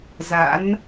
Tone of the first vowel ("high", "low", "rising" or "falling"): rising